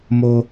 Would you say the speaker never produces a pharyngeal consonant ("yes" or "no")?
yes